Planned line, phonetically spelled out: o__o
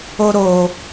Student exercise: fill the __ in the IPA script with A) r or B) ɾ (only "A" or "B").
B